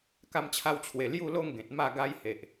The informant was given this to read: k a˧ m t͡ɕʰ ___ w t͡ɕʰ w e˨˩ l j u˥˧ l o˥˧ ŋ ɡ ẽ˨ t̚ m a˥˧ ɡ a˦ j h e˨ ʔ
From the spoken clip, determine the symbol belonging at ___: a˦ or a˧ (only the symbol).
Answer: a˧